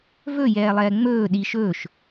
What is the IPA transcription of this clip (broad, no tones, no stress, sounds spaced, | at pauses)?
v ɵ j ɛː lˠ ɛː ŋ͡m ɵː ɗ i ʃ ɵː ʃ